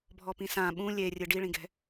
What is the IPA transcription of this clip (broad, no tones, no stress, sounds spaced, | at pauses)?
bʱ ɔ p ĩ s ã ɓ ũ lʲ e rʲ ɨ ɖ i ɭ ĩ ɡ ɛ̤